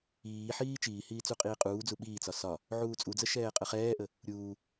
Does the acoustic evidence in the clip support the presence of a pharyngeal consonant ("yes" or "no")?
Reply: yes